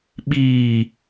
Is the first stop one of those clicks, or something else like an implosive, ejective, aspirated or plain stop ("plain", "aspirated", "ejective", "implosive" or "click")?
implosive